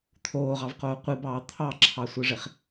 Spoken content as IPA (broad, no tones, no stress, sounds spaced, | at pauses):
t̪ʰ oː ʁ ɑ v q oː qʷ i b ɑː t̪ʰ ɑ ǁʰ ɑ sʷ ɯ ʐ e χ